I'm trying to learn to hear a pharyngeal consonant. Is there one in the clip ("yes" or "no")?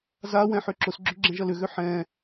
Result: yes